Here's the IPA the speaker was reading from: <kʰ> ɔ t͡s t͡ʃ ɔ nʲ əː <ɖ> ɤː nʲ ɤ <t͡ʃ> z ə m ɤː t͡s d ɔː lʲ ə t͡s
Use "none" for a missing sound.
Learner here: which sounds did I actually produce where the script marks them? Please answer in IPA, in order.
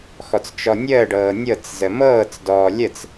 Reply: x, ɖ, t͡s

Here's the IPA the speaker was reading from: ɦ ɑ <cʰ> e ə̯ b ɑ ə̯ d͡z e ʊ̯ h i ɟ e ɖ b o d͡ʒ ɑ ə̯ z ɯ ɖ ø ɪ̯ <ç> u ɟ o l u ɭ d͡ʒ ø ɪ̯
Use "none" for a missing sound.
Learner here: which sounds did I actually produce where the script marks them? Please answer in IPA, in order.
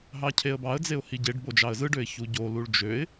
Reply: cʰ, ç

